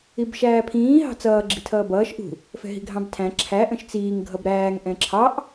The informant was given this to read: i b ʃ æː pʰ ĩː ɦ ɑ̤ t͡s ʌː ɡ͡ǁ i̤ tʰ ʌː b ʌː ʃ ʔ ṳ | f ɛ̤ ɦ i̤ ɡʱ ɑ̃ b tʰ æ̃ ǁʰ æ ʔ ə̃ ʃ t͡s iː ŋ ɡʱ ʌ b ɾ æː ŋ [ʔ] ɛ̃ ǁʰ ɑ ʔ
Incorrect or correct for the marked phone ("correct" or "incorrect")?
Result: correct